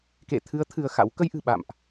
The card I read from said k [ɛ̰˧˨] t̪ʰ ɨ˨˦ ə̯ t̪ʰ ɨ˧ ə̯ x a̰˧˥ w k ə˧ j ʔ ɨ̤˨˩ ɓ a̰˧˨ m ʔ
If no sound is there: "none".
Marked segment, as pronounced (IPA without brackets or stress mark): ḛ˧˨